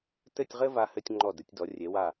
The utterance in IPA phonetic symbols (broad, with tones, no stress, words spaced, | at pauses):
tɘ˥˧tʲʁɘ˥va˧hɘ˧tʲ ŋ͡ǃɔ˧˩dɘ˩˧tʲdɔ˩˧ rʲe˩˧wa˧˩